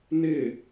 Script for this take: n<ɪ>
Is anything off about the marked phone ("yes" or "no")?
no